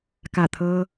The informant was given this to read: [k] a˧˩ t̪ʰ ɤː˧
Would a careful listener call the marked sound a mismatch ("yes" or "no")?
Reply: no